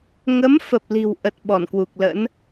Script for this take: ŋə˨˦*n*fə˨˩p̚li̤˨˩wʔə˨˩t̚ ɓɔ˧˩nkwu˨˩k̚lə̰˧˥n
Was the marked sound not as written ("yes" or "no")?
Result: yes